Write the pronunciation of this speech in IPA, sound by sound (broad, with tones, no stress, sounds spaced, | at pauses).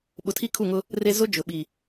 ɓ ʊ˨ tʰ i˦ kʰ u˦˨ ŋ ʊ˦ | r e˦ z ʊ˦ d͡ʒ ʊ˨ ɓ i˨